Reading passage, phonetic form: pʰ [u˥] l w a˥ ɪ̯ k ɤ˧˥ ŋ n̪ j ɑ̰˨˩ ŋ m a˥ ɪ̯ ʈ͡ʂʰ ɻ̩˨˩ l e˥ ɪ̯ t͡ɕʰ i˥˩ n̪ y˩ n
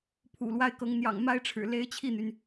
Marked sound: incorrect: ṵ˨˩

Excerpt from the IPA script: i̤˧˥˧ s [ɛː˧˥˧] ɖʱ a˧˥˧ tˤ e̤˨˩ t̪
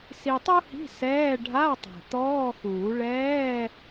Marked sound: correct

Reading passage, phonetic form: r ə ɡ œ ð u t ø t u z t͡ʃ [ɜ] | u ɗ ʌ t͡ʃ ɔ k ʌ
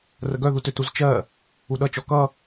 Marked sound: correct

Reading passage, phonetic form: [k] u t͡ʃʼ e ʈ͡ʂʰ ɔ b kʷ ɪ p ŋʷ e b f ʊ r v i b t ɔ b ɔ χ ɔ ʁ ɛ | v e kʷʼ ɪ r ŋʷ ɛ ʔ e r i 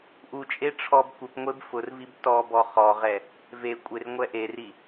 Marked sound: incorrect: ʔ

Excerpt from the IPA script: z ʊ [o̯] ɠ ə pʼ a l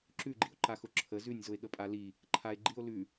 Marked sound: incorrect: e̯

